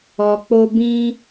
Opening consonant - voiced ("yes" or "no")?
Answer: no